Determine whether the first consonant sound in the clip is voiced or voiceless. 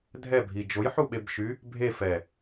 voiced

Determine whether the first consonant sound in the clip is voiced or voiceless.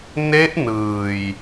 voiced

